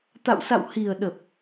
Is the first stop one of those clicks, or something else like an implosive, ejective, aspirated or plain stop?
plain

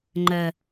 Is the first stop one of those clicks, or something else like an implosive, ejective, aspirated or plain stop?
click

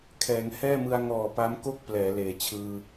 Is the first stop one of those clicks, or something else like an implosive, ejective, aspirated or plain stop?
aspirated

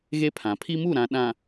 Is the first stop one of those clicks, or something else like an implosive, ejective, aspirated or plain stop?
aspirated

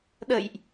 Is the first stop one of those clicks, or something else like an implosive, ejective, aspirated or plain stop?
implosive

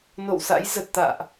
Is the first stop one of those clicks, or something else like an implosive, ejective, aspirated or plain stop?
plain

